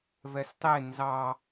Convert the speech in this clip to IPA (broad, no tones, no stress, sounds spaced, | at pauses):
v ɛ s tˤ e n z ɑ